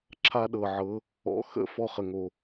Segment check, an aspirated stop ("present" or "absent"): present